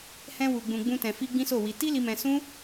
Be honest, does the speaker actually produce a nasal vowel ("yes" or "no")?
yes